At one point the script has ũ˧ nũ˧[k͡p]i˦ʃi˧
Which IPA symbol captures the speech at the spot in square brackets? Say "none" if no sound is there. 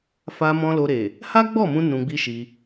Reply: ɡ͡b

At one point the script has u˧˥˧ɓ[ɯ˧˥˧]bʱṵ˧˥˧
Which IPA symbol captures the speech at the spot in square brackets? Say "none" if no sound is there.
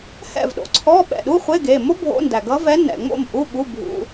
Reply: u˧˥˧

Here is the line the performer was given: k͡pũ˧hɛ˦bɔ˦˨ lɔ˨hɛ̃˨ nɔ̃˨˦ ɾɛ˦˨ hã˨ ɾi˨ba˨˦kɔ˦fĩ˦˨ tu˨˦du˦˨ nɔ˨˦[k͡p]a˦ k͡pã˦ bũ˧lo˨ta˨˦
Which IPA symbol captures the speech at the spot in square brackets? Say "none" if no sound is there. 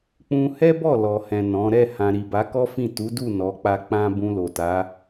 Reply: k͡p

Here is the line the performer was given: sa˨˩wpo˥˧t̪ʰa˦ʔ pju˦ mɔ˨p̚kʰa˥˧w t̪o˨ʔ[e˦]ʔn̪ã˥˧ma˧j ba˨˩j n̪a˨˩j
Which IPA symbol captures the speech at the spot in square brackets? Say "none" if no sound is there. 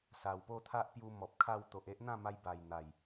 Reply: e˦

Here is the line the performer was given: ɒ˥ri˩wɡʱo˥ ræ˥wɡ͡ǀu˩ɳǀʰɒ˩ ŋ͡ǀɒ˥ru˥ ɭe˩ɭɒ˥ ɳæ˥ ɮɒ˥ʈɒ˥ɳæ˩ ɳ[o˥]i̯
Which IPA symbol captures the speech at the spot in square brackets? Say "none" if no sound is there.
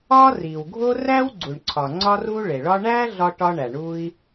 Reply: u˥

